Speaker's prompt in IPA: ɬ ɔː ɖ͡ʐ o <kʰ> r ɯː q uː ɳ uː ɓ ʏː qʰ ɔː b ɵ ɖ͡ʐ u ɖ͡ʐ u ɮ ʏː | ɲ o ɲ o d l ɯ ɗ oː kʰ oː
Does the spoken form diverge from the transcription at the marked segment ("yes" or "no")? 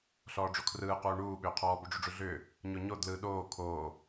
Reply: no